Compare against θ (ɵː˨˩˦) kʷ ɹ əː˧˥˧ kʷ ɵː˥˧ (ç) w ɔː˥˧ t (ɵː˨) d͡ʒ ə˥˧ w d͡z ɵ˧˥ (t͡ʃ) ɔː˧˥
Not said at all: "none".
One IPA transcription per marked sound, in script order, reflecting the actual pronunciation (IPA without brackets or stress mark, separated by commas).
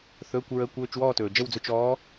ɵː˧˥˧, t͡ʃ, ɵː˨, t͡ʃ